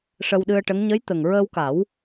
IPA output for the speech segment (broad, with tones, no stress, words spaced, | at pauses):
ʂə˧wɗɨ˧ə̯ʈə˧˥ŋ ɲə˧˥jt̪ə˨˩ŋɹəː˧wka˨˩˦w